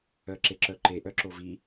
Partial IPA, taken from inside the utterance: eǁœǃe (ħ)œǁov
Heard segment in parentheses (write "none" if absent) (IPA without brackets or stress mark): ʔ